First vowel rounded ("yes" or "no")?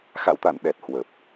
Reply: no